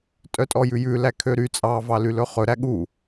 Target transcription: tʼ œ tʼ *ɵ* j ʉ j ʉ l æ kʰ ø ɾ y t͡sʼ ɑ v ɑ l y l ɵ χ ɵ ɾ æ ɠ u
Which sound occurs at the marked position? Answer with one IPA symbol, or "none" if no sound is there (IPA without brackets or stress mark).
ɔ